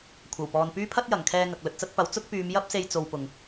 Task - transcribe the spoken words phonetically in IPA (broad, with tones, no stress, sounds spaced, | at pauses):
kʷʰ ɐ˨˩ w p ɔː˨ n p yː˥ pʰ ɐ˥ t̚ j ɐ˨˩ ŋ kʰ ɛː˧ ŋ ɐ˨ k̚ l ɵ˨ t̚ t͡s ɐ˥ t̚ p ɐ˨˥ w t͡s ʊ˥ k̚ p yː˨˧ m j ɐ˥ p̚ s e˧ j t͡s o˧ w p ʊ˨ ŋ